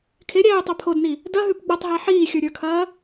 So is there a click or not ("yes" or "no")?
no